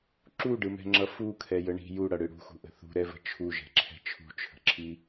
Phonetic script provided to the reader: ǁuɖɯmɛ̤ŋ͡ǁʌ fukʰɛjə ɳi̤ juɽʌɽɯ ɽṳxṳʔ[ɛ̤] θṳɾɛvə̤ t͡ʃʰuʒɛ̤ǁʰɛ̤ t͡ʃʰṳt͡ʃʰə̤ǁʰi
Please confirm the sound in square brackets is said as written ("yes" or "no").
no